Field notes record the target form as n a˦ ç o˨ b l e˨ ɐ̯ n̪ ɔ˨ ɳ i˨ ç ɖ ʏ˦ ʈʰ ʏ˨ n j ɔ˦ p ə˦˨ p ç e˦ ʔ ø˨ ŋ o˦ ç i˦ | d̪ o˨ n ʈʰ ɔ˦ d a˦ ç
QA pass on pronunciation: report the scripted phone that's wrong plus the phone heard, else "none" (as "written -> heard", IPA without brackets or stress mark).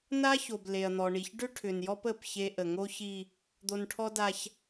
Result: ø˨ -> ə˨